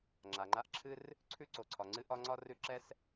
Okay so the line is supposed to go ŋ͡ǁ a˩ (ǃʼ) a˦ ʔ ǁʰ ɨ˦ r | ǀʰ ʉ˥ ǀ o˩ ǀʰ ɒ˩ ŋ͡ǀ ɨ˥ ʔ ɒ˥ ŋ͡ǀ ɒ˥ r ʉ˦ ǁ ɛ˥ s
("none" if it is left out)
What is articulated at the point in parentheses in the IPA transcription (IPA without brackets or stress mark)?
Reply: ŋ͡ǃ